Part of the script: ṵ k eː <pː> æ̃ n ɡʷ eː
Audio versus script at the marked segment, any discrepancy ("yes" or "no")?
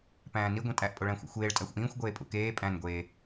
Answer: yes